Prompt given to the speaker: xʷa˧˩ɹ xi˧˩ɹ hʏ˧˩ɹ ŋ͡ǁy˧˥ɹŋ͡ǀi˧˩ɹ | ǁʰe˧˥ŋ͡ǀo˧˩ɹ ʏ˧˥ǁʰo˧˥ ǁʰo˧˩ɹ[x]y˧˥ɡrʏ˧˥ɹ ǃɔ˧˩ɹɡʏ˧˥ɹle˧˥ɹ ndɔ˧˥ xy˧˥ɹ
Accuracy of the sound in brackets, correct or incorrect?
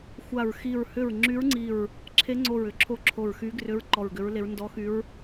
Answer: correct